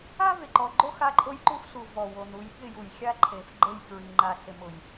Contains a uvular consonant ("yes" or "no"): no